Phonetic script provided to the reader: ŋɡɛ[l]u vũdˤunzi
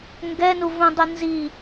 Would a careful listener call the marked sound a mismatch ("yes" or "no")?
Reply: yes